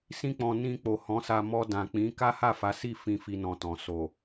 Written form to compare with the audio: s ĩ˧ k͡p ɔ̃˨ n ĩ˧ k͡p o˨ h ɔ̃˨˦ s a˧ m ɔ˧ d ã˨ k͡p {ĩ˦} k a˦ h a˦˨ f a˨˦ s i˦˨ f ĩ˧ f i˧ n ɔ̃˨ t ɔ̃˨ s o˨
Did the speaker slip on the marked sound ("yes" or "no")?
yes